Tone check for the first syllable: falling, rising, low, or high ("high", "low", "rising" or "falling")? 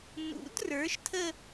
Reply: rising